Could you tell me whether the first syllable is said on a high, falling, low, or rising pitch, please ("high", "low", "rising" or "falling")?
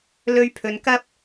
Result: high